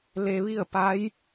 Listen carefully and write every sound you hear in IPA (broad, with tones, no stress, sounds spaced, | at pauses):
l e˧ ʋ i˥˨ ə̯ p a˧˥ j